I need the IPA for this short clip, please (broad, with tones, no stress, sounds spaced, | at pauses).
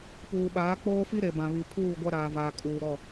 p uː˨ ɓ aː˨˦ k͡p oː˦ f i˦ ɾ e˨ b ã˨ β i˨ pʰ uː˦˨ ɡʷ a˦ ɾ aː˨ v aː˨ kʼ uː˨ ɾ ɔ˦˨